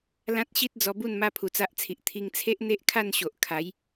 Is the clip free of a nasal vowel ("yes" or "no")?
no